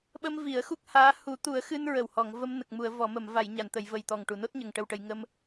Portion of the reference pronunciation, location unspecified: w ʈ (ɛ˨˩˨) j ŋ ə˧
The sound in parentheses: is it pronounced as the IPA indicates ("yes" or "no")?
no